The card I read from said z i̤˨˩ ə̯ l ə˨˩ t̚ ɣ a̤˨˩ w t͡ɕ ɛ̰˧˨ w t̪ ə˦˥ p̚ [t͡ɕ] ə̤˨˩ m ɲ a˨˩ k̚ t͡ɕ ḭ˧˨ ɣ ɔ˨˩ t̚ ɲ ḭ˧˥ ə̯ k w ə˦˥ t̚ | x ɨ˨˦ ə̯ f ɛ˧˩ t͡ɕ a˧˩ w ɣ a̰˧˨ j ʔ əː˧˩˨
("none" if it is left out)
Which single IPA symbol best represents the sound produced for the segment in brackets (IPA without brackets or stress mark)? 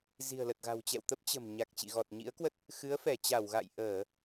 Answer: t͡ɕ